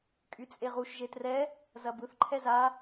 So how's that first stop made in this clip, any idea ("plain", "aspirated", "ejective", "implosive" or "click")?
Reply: ejective